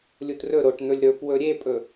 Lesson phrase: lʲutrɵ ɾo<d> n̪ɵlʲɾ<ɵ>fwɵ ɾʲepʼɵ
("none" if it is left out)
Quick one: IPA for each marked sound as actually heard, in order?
ʈ, ɵ

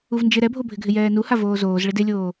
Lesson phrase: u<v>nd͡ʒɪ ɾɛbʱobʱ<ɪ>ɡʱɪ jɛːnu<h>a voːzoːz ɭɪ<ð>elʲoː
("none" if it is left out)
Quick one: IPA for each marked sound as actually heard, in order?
v, ɪ, h, d

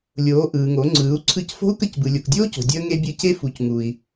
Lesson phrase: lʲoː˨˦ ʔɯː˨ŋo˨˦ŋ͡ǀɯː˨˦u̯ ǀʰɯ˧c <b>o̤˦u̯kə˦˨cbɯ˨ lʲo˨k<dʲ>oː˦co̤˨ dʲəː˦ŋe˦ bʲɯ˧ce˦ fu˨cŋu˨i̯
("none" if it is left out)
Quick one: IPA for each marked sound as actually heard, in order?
f, dʲ

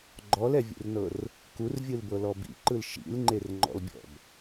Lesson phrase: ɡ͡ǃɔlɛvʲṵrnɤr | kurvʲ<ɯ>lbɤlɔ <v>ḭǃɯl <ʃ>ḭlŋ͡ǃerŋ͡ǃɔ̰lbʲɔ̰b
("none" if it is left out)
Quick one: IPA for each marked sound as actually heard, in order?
ɯ, b, ʃ

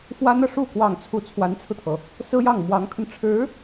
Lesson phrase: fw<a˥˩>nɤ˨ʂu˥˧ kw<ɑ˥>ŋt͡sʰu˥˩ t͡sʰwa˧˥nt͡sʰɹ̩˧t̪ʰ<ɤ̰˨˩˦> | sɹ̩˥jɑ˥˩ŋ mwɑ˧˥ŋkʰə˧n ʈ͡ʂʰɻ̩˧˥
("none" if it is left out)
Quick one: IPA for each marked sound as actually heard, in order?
a˥, ɑ˥˧, ɤ˩

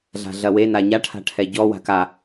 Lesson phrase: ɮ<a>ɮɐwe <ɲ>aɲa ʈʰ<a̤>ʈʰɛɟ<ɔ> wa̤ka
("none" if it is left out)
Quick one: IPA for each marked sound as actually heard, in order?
a̤, n, a̤, ɔ

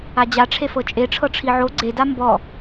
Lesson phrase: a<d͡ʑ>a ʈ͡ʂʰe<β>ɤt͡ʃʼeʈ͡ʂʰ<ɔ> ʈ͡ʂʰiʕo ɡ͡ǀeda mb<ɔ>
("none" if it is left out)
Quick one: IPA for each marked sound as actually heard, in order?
d͡ʑ, f, ɤ, ɔ

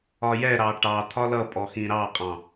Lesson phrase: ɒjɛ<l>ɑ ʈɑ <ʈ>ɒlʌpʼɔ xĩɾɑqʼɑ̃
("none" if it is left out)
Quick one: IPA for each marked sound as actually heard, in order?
ɾ, t̪ʰ

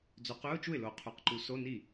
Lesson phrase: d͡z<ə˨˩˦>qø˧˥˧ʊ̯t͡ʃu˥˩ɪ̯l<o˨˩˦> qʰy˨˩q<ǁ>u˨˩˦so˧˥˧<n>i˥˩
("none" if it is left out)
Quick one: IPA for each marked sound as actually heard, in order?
ø˨˩˦, o˨˩˦, ǃ, n

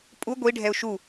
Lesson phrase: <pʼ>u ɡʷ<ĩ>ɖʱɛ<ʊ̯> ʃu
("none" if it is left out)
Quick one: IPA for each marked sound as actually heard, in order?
pʼ, i, ʊ̯

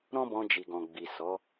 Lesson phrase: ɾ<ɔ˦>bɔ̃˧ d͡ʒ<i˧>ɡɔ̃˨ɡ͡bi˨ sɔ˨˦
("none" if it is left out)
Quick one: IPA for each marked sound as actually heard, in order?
ɔ̃˦, i˨

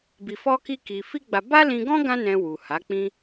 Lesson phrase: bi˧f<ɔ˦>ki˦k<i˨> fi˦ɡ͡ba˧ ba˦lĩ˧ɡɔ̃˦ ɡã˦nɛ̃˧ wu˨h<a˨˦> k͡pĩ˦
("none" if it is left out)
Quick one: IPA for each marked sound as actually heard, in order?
ɔ˦, i˧, a˨˦

